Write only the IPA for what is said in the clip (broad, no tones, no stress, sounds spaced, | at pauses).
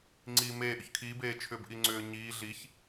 ŋ͡ǀ iː m eː ʔ ʏ ç kʰ iː b eː t͡ʃʰ ʏː b ʔ i ŋ͡ǀ ʏː ɲ iː ɮ i ç